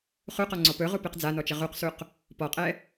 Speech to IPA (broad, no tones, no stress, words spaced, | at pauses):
χuqɔŋ͡ǀɔ pɵʁu peqd͡zanɔt͡ʃə ʁuqsuq | pɔqʼɛ